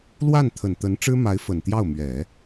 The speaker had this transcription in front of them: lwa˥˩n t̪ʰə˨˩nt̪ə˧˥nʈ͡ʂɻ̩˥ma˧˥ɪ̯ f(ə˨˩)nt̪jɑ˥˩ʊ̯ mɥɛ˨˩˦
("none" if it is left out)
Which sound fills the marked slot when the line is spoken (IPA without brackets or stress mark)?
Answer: ə˨˩